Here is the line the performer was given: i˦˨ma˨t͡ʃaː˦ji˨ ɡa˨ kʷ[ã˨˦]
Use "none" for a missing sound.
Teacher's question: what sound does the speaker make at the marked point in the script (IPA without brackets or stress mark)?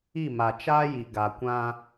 ã˦